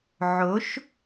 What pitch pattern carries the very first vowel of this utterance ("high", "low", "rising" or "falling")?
rising